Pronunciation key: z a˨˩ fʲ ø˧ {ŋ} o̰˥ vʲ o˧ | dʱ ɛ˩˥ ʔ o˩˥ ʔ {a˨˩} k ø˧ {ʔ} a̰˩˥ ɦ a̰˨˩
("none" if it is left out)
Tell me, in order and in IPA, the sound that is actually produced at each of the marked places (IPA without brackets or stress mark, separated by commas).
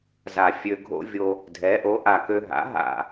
ɡʱ, a˨˩, ɦ